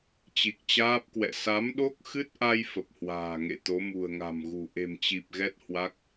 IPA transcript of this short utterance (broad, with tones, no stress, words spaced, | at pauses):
t͡ɕi˨˩k̚t͡ɕaː˦˥p̚kwɛ̰˧˨ sa˨˦mɗo˦˥k̚xɨ˦˥t̚ʔa˧j fə˨˩p̚hwa̤ː˨˩ŋḛ˧˨ t̪o˨˦mṳ˨˩ə̯ŋa̤˨˩mɣṳ˨˩ ʔe̤˨˩mt͡ɕi˨˩p̚ɣɛ˦˥t̚ hwa˦˥k̚